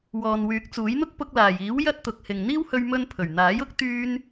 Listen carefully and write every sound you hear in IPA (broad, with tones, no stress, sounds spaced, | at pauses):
w ɔː˨ n w yː˨˥ k̚ t͡s uː˨˥ j n̪ ʊ˥ k̚ p ʊ˧ k̚ l aː˨˩ j iː˨˥ w j ɐ˥ t̚ t̪ ʊ˨ k̚ h ɪ˨ ŋ n̪ iː˥ w h ɵ˧ ɥ m ɵ˧ n pʰ ɵ˨˩ ɥ n̪ aː˨˥ j ʊ˥ k̚ t̪ yː˥ n